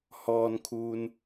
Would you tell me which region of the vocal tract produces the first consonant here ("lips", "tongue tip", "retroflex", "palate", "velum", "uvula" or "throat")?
throat